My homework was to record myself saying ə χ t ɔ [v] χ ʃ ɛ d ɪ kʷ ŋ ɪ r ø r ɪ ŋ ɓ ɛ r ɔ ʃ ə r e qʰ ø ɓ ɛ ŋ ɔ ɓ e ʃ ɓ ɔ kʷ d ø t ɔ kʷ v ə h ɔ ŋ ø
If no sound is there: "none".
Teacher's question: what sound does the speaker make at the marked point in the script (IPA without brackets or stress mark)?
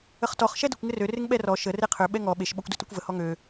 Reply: none